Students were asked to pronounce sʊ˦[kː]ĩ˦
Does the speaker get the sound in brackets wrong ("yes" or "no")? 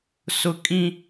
yes